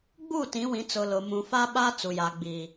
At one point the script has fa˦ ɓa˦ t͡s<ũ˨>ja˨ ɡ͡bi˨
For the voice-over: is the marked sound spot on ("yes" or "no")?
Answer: no